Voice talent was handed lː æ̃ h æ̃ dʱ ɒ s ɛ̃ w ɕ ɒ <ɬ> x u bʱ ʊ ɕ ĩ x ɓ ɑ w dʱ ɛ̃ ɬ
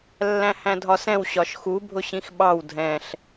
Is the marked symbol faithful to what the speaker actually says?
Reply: no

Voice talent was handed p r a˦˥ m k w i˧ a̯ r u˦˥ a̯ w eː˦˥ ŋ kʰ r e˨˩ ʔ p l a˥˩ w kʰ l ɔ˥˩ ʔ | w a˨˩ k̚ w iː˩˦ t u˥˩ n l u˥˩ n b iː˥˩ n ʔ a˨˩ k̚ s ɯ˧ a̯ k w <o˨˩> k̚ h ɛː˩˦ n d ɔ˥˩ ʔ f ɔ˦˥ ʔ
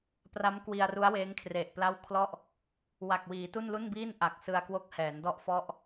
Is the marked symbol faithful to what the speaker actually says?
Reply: no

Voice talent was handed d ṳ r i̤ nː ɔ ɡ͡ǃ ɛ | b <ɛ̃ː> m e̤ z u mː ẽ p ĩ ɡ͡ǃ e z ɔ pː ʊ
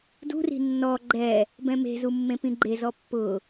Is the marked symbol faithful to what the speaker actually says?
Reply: no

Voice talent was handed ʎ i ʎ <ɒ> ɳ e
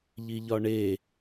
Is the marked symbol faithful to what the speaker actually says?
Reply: yes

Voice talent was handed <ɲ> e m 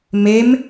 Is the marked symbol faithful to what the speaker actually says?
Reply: no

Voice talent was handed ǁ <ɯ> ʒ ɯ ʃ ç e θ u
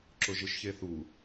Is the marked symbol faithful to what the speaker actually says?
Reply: no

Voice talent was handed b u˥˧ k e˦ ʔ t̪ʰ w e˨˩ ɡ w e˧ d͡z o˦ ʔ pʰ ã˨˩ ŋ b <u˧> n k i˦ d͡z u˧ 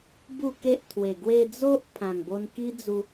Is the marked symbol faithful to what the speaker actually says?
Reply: no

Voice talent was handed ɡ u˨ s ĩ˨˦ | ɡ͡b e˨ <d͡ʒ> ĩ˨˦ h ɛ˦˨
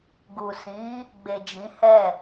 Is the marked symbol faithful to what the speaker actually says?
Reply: yes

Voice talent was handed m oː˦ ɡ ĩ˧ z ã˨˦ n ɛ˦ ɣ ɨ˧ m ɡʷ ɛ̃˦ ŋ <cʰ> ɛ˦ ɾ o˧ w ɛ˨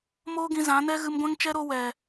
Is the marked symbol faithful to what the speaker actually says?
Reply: no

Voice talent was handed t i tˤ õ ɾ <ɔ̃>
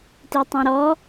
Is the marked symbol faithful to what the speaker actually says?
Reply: no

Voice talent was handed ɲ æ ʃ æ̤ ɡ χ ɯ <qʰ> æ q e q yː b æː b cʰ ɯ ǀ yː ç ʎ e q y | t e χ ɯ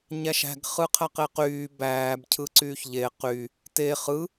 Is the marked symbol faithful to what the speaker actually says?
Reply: yes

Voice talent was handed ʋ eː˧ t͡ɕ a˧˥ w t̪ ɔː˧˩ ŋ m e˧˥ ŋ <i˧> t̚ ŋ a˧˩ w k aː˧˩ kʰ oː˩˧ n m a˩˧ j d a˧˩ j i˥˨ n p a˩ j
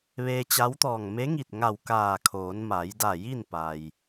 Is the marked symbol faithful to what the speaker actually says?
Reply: no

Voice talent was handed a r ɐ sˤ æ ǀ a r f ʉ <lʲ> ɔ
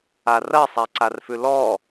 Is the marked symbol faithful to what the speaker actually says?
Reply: no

